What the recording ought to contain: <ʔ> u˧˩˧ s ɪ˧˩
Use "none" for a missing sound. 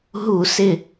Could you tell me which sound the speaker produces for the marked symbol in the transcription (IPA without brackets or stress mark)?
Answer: ɦ